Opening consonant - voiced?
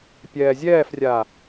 no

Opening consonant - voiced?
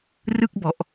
yes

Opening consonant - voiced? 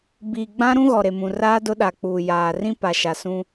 yes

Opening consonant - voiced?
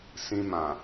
no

